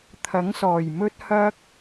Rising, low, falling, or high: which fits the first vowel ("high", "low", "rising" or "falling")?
rising